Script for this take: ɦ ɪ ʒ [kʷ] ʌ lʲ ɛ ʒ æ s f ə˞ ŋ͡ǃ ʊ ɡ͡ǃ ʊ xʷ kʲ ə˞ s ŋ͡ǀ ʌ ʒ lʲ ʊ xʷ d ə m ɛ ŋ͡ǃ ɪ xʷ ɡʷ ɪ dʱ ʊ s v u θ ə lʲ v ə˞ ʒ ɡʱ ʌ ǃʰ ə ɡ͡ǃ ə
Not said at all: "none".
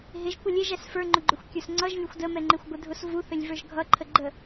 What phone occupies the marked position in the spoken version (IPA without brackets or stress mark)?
kʷ